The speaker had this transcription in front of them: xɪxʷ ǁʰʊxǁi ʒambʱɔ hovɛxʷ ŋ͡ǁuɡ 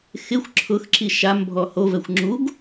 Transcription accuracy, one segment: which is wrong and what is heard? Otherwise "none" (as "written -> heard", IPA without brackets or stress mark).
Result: ʒ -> ʃ